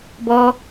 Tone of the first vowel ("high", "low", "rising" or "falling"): high